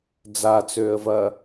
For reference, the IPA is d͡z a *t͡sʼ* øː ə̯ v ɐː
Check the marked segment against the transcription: incorrect: t͡s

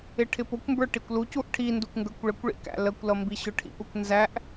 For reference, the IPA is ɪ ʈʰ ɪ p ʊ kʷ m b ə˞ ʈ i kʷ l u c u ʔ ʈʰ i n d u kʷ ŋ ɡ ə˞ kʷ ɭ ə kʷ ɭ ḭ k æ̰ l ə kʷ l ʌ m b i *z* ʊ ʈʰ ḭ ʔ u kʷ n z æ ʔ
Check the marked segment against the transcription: incorrect: ɕ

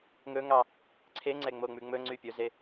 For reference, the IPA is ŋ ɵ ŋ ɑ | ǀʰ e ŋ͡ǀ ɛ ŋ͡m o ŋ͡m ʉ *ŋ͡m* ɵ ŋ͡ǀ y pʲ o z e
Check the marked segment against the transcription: correct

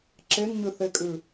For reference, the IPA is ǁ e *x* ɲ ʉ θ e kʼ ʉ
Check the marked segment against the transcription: incorrect: ŋ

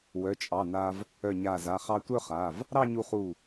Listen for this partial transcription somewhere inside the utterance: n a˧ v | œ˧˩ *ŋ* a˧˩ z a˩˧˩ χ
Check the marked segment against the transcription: incorrect: ɲ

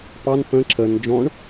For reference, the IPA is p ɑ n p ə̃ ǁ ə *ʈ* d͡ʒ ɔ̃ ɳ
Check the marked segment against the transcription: incorrect: n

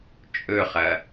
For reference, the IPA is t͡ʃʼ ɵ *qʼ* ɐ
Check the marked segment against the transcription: incorrect: χ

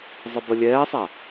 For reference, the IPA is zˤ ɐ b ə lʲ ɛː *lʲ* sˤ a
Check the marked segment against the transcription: incorrect: none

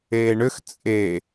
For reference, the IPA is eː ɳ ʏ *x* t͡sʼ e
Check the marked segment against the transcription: correct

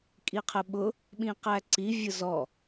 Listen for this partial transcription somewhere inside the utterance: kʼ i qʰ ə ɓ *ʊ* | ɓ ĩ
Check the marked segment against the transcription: correct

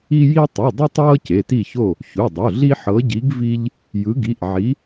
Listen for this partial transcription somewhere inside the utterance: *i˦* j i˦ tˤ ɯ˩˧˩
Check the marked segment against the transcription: correct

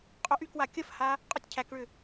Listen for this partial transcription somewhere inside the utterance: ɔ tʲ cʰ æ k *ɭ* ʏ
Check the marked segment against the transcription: correct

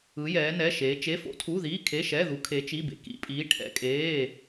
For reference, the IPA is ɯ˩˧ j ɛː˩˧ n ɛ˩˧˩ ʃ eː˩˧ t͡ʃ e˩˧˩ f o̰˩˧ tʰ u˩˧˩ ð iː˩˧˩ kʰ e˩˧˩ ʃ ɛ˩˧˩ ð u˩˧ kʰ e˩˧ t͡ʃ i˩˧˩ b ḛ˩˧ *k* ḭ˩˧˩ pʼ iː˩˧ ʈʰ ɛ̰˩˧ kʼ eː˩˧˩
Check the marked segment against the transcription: correct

